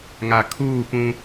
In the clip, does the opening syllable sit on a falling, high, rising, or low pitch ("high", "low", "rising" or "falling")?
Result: low